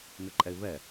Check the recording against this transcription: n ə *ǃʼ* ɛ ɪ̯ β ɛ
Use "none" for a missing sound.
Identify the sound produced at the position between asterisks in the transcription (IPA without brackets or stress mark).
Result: ǃʼ